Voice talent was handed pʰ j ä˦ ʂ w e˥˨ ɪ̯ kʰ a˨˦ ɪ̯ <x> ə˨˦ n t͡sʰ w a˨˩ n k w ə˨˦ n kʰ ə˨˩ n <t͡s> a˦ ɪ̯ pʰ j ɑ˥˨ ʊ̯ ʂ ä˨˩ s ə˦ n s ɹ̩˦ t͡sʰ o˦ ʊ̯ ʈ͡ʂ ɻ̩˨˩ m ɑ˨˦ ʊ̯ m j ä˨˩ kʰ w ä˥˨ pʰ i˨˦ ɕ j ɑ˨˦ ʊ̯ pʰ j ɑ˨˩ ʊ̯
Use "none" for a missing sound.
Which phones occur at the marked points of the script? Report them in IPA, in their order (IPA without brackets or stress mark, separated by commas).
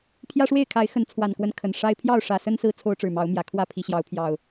x, ʂ